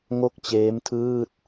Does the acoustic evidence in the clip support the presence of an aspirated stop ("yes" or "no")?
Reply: yes